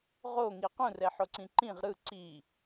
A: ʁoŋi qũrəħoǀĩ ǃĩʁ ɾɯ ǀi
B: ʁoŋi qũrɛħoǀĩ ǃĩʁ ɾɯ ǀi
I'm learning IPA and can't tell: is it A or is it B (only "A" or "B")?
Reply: B